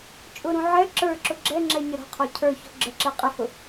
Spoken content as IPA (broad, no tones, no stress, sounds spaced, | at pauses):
t͡ʃʼ ʊ ɾ ũ ʕ ɛ ǁ ə˞ ǁ ʊ ɡ͡ǁ ɛ ŋ͡ǁ ɛ ɲ ə ɾ ɔ̤ qʰ ɔ cʰ ə˞ ç ɔ̤ ɡ͡ǁ ə ǁ ɛ qʼ ɪ h ʊ